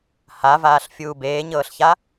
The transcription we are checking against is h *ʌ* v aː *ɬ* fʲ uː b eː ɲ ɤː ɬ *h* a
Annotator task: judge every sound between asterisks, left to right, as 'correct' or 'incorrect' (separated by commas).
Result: incorrect, correct, incorrect